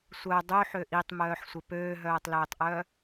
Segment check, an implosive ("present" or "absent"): absent